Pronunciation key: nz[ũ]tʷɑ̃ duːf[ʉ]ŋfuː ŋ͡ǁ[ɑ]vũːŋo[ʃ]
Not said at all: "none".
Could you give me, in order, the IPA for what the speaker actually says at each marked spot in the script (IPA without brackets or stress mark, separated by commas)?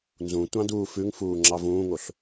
ũ, ʉ, ɑ, ɬ